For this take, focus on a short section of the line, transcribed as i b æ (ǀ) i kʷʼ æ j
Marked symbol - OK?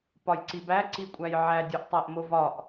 yes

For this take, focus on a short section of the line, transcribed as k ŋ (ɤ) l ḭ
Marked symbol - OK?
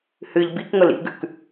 yes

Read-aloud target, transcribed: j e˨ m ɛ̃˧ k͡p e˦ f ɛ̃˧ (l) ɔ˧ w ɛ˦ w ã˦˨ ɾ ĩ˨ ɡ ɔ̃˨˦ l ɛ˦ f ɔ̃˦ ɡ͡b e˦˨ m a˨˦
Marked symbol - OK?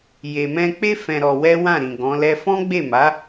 no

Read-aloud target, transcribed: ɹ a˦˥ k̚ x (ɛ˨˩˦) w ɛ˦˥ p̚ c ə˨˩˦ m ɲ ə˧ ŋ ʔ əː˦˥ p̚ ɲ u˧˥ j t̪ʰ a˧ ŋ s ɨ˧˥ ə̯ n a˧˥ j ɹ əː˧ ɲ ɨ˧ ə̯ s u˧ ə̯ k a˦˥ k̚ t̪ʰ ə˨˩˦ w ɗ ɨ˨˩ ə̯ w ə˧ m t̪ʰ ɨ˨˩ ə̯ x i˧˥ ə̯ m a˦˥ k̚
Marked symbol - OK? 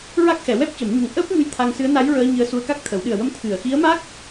yes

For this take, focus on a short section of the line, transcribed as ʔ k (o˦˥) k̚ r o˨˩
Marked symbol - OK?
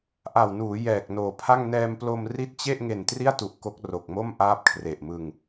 yes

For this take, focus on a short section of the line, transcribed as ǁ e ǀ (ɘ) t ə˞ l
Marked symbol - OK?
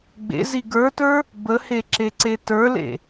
no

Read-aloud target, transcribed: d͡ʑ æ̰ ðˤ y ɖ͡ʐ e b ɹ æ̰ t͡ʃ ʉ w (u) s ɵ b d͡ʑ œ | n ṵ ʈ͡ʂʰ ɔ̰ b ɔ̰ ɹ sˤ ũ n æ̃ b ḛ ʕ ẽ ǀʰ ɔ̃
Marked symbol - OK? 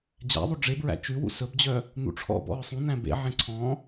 no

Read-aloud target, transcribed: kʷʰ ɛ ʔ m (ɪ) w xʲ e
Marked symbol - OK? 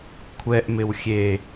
yes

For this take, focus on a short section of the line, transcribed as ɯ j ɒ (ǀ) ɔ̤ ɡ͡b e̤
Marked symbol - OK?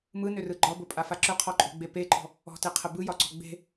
yes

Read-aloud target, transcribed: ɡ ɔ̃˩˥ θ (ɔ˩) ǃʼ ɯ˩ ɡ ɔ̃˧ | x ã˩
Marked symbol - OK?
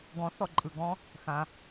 yes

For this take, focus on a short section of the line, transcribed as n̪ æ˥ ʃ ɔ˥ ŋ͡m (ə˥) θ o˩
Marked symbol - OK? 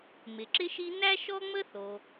yes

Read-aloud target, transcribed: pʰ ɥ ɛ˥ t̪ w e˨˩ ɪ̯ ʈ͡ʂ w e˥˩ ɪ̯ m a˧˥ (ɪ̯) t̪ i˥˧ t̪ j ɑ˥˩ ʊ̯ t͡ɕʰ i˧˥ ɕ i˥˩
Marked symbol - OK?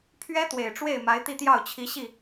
yes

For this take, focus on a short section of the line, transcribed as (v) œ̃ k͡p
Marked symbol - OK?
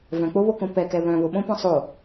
yes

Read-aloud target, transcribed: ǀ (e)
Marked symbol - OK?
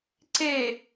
yes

